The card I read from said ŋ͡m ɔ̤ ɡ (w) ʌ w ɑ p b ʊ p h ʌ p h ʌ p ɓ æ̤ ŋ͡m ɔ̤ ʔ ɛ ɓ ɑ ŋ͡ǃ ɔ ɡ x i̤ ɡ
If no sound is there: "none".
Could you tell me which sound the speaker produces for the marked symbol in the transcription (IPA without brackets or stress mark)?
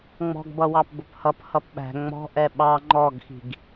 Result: b